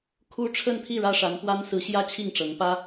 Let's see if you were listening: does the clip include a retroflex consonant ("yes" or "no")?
yes